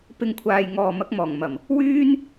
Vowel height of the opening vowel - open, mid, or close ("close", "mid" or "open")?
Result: close